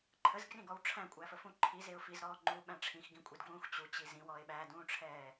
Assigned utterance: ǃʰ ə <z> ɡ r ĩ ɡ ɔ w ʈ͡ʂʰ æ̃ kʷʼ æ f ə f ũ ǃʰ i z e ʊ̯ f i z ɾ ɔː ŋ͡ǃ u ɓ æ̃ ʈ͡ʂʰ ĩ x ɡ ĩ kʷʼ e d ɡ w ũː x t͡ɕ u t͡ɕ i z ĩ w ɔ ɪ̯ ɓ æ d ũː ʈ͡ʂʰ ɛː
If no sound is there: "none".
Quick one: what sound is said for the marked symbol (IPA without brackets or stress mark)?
z